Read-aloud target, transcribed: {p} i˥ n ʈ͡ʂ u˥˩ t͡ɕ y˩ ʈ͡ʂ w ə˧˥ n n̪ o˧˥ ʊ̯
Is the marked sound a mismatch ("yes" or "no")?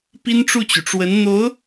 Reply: no